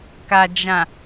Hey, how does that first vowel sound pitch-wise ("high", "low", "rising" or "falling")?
low